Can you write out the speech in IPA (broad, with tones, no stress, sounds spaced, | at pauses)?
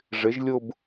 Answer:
ʐ ɪ˩˥ ʒ lʲ ʊ˥˧ b